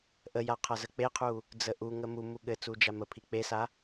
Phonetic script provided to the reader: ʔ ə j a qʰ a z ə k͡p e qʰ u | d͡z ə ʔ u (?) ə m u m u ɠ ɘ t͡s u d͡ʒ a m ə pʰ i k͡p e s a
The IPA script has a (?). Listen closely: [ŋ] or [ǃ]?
ŋ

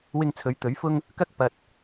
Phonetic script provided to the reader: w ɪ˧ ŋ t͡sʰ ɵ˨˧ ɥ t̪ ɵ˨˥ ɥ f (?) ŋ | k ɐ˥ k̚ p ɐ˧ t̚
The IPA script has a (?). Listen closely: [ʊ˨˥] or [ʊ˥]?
ʊ˥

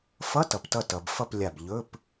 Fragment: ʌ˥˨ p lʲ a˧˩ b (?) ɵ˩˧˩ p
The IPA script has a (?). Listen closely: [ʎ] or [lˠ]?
ʎ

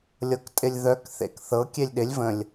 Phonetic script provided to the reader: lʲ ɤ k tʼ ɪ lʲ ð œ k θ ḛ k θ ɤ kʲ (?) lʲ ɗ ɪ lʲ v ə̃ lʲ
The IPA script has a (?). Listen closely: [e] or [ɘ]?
e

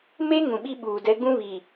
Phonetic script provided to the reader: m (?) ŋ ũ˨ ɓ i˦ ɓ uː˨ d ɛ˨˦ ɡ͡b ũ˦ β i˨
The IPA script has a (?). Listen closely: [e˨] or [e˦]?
e˦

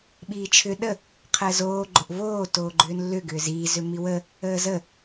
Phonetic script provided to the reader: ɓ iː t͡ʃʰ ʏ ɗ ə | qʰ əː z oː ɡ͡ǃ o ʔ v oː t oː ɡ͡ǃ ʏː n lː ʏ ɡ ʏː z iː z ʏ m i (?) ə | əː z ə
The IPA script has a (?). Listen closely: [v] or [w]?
w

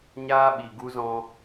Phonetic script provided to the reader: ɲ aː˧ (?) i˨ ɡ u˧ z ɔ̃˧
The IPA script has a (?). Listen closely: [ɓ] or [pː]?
ɓ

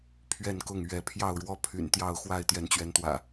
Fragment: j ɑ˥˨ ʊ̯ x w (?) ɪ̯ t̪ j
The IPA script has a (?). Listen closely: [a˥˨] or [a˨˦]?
a˥˨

